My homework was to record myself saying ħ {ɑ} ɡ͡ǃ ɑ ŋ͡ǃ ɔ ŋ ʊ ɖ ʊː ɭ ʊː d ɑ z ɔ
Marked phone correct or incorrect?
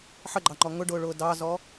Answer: incorrect